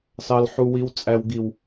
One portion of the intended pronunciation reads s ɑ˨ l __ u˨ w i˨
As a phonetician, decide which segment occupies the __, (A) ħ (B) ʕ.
A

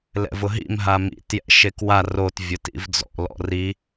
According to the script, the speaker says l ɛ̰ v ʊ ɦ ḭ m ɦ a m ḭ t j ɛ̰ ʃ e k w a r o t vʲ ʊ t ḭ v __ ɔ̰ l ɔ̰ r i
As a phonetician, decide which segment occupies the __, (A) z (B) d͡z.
B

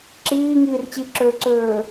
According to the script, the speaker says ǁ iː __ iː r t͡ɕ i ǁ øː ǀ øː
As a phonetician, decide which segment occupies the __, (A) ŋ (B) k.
A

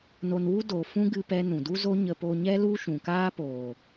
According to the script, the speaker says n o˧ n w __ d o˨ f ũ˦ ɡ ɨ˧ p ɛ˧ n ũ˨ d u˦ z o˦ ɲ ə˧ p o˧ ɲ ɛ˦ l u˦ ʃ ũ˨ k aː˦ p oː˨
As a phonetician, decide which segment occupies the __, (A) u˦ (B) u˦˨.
A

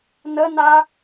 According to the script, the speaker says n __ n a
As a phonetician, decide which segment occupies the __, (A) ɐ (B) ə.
B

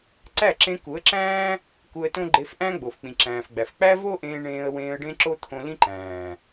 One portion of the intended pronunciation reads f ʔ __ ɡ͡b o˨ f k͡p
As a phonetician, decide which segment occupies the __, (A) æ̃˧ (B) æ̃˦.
B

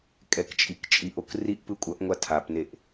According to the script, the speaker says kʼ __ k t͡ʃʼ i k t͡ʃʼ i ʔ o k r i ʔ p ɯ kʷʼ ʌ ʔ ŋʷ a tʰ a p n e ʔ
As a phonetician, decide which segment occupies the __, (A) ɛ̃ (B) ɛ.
B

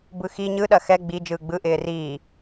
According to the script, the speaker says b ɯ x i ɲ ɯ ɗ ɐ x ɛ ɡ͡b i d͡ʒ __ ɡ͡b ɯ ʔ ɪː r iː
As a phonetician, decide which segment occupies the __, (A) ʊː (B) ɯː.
B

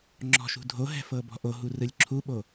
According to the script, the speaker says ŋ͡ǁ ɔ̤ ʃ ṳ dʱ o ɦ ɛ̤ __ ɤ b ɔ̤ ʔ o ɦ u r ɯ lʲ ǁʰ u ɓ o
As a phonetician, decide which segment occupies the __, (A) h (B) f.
B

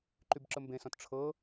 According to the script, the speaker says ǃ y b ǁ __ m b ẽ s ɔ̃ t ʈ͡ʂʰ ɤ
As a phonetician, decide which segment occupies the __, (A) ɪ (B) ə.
B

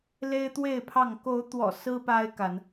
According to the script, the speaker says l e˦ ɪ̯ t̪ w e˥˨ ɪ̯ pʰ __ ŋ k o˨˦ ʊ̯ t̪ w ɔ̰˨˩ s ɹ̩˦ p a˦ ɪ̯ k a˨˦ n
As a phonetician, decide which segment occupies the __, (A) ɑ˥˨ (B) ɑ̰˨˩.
A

